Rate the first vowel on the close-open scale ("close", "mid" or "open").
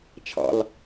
open